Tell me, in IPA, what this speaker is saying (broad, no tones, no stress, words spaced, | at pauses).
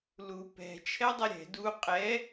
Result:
lu pɛ̤ t͡ʃʰɛdˤɛɾʲɛ̤ du qʼɛ